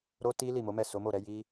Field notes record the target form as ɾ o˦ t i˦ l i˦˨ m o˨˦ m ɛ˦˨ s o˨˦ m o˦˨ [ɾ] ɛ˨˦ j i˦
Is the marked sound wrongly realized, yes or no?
no